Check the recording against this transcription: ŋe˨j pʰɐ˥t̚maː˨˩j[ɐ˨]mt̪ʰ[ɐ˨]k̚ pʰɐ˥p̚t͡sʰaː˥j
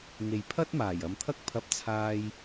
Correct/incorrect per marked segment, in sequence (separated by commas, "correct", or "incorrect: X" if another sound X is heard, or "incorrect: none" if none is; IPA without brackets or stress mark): correct, incorrect: ɐ˥